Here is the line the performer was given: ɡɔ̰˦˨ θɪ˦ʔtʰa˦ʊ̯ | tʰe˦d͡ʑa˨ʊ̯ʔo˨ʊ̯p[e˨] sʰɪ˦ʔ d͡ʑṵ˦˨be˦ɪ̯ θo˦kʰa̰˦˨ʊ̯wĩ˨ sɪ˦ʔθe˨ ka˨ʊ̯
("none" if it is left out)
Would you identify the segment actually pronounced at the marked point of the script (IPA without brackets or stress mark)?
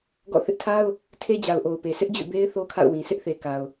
e˨